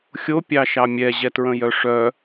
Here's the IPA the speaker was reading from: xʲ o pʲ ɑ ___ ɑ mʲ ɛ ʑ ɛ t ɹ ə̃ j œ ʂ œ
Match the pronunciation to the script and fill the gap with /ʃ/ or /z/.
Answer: ʃ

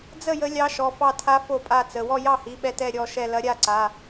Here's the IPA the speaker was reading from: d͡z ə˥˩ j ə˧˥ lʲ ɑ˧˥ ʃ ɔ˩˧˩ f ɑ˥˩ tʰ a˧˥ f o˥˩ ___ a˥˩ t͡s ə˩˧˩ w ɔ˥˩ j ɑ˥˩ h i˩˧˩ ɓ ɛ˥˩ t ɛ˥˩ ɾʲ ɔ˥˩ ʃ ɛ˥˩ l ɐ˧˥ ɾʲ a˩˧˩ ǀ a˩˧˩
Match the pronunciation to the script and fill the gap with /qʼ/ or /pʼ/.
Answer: pʼ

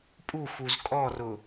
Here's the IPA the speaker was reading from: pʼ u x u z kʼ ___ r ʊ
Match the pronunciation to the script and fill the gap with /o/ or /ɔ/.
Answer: ɔ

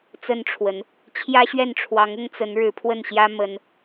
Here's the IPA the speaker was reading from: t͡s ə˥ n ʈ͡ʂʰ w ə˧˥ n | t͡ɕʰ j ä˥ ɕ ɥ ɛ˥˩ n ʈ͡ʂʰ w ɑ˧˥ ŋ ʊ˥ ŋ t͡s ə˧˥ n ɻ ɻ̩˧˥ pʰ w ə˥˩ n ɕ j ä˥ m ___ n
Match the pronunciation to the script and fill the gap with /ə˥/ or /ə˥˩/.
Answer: ə˥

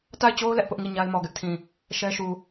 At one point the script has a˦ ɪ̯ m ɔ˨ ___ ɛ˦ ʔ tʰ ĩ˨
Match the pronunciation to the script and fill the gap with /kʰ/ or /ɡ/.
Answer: ɡ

